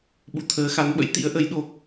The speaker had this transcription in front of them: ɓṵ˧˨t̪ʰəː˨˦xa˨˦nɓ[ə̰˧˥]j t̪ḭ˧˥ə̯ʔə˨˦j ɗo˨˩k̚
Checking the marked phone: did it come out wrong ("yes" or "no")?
no